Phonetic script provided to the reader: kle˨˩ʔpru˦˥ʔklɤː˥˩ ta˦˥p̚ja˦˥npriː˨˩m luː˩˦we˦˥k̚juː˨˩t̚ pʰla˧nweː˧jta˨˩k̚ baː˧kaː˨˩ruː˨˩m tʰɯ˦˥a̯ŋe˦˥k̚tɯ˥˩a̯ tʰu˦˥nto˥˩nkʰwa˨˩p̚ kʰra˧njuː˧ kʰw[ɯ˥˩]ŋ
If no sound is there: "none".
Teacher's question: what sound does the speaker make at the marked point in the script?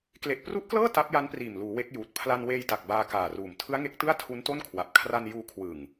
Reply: ɯ˨˩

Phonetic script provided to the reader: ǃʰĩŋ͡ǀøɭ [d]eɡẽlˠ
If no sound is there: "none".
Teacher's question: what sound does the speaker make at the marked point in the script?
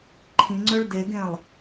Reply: d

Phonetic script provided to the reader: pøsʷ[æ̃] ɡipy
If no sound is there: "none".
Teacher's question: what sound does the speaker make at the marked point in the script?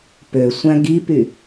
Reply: æ̃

